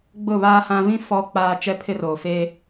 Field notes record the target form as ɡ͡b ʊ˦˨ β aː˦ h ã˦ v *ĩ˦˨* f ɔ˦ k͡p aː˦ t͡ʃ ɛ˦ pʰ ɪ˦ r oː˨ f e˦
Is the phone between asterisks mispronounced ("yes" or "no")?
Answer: yes